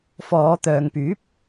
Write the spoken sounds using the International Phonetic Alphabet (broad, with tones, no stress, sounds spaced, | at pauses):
f ɔː˨˧ t̪ œː˨ ŋ p yː˨˥ p̚